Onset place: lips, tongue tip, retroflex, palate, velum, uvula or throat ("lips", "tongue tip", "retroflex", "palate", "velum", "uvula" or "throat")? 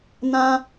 tongue tip